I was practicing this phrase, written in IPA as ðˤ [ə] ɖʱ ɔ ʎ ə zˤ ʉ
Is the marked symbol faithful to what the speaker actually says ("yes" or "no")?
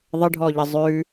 yes